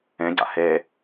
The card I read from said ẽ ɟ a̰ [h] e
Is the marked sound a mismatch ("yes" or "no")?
no